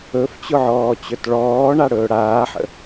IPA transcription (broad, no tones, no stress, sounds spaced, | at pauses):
ɵ f t͡ɕ ʊ ʕ ɔː t͡ɕ ɵ t ɭ ɔː ɳ a ɽ ɵː ɽ aː ħ ə̰